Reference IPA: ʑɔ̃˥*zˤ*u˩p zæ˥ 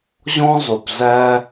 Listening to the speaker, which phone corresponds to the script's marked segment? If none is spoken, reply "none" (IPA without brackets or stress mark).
zˤ